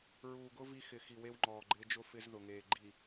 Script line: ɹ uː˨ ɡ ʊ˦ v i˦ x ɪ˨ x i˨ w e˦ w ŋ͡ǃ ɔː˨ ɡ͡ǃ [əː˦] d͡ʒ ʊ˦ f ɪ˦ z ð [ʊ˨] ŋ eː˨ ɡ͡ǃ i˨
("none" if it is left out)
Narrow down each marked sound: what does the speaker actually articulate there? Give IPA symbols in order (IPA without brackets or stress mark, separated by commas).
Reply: ɪː˦, ʊ˨